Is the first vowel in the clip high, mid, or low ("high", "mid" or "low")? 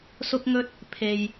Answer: high